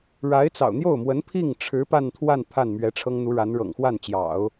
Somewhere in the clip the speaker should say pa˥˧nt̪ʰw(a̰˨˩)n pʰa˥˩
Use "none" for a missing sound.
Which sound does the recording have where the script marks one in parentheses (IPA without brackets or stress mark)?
a˥˧